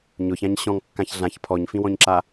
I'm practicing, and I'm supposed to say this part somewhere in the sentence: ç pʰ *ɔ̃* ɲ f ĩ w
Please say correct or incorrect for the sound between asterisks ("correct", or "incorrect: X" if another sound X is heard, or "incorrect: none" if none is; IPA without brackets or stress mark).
incorrect: ɔ